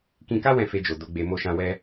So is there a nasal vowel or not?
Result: yes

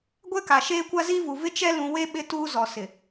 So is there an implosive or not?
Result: yes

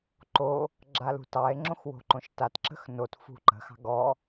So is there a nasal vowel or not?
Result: yes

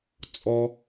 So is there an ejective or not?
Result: yes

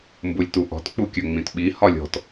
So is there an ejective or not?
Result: no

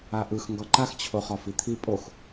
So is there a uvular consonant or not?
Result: yes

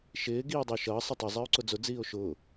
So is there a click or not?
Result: yes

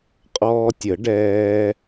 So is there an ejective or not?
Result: yes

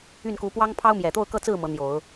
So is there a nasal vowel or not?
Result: no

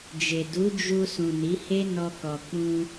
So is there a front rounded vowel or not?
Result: no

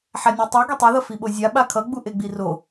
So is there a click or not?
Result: no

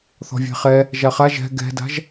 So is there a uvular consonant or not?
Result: yes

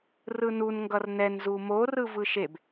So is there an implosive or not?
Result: no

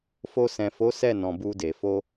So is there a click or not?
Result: no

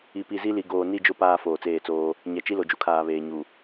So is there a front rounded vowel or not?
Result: no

